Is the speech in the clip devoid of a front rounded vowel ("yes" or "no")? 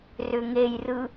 no